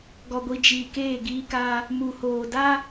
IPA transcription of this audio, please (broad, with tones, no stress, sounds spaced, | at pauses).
ɡ ɔ˨ ɡʷ i˨ d͡ʒ iː˨ k eː˦˨ ɡ iː˦ k a˦ | m u˨ h oː˨ d a˦